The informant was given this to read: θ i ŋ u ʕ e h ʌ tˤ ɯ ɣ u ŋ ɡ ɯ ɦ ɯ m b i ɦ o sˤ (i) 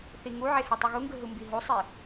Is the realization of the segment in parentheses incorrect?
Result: no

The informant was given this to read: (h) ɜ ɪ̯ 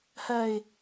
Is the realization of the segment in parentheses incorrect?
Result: no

